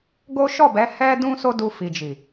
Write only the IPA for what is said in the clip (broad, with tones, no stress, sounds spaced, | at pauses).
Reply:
ɡ o˦ ʃ ɔ˦˨ b ɛ˨˦ h ɛ˦ d ũ˦ s o˦ d u˧ f i˨ d͡ʒ i˨